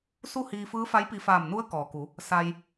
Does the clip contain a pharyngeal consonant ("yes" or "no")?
no